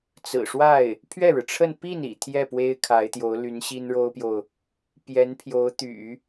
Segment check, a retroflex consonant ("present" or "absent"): present